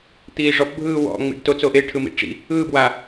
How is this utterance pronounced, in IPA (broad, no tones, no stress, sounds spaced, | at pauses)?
t̪ iː ʐ ɔ p bʱ ɯː w ɔ̰ ŋ͡m ḭ ɖ t o t͡s o ʔ e ʈʰ ɯ m ḭ ʈ͡ʂ ḭ | ɯː b w a